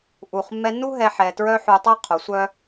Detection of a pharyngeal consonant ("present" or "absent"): present